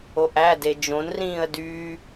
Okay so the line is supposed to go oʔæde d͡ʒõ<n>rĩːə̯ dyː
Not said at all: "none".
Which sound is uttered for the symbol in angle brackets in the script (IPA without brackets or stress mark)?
n